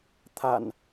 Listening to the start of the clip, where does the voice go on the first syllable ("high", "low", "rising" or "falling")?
low